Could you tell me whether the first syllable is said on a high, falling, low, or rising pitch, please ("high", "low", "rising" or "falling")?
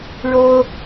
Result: high